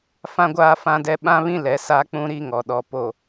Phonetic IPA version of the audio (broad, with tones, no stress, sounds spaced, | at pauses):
f ã˦ ɡʷ aː˦ f ã˦ d ɛ˦ ɓ ã˦ β ĩ˦ l ɛ˨˦ s a˦ k͡p ũ˦ ɾ i˦ ŋ ɔ˨ ɗ ɔ˨ p o˨